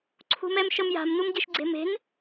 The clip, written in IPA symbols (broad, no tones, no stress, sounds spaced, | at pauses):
ǀʰ ṳ m ɛ m ʃ ə m j a̤ m n u m ɟ e ʃ ɡ͡ǀ e̤ m e̤ n